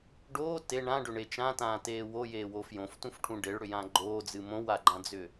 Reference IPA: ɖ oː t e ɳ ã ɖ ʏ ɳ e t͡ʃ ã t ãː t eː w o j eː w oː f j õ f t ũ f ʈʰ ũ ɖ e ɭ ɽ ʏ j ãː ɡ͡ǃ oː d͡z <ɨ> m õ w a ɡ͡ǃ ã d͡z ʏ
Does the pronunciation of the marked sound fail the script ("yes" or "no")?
no